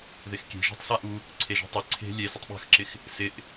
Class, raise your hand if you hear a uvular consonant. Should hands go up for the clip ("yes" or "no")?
no